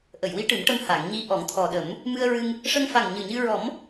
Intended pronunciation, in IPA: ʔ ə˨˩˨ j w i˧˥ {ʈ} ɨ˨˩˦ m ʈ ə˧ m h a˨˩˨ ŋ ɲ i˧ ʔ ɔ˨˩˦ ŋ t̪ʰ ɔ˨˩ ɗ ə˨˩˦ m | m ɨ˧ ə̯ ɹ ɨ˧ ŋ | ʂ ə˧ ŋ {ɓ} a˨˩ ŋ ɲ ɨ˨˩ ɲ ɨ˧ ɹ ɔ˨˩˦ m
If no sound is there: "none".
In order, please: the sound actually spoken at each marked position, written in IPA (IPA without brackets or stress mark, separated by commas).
ʈ, f